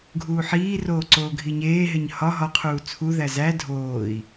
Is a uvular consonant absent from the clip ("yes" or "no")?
no